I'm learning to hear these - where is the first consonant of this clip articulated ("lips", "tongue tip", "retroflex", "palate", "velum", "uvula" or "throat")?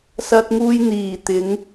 tongue tip